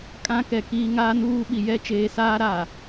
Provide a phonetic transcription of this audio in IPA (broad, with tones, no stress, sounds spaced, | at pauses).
kʼ ã˦ k ɛ˨ k iː˨ ŋ aː˦ n uː˦ ɓ i˨ j ɛ˦ t͡ʃ eː˨ s aː˦ ɾ a˨